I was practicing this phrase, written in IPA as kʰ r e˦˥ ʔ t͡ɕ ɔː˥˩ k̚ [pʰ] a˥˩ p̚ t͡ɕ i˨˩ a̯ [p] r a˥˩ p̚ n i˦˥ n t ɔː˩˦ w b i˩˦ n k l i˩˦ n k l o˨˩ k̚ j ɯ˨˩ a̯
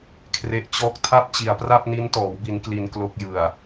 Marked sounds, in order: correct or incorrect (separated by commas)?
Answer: incorrect, correct